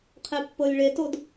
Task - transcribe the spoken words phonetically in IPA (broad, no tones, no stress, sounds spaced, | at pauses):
qʰ e pː ɤ lʲ ɭ e t o d